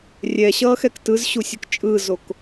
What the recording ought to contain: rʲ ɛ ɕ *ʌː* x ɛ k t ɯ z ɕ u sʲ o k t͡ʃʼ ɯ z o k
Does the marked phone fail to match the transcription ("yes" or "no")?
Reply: no